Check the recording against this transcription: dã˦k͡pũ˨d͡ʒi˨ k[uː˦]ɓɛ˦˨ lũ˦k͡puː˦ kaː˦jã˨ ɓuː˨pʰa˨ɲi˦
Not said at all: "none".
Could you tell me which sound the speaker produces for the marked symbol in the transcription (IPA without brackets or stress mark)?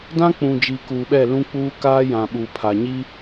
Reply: uː˨